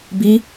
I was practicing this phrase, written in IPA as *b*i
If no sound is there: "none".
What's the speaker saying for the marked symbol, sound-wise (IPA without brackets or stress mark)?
b